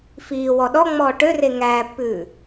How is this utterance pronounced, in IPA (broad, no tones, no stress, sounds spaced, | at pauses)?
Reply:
f iː w ɔ ɗ ɔ ŋ͡m ɔː ʈ ø r e ŋ æː pː ʉː